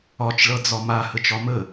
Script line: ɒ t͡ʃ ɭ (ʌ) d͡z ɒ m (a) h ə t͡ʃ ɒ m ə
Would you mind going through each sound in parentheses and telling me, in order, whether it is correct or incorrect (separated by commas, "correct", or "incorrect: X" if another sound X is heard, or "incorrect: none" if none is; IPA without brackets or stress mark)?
correct, correct